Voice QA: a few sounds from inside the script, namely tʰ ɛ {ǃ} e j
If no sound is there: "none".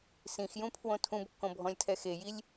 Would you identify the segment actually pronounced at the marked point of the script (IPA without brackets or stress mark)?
x